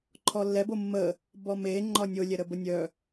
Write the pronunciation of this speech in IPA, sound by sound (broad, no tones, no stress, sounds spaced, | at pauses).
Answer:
ǃʰ ɔ lː ɛ b o mː ə | b ɔ m e ŋ͡ǃ ɒ nʲ o lʲ ɛ ɾ ə b ə nʲ œ